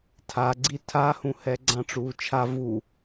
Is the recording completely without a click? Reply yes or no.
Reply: no